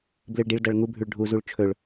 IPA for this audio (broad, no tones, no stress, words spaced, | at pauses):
blɨɭɖiɭdɐɭ ŋubʱʉɭ ɖʱuzuɭ t͡ʃʰɵɭ